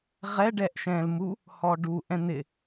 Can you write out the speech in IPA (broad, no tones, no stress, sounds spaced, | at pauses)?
ʁ ɛ ɖ ɛː ʔ ʃ ɛ̃ː l m u | h ɔː ɖ u ʔ ɛ̃ n̪ ɪ